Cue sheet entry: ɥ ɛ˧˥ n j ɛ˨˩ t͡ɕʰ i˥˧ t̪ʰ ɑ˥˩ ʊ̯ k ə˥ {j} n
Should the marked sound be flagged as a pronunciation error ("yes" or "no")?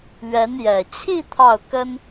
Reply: yes